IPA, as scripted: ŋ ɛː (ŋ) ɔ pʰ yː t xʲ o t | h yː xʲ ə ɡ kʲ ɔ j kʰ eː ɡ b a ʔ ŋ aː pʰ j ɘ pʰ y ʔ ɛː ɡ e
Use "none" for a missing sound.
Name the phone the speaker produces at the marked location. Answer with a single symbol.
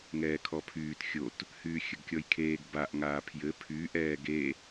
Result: kʰ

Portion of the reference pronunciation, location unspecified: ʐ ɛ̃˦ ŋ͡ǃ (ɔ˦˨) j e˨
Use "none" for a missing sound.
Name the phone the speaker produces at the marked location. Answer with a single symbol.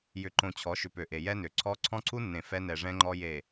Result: ɔ˦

